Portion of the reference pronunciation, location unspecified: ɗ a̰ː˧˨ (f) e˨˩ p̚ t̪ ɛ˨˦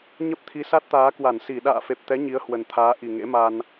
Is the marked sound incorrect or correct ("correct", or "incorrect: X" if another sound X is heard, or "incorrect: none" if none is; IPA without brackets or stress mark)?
correct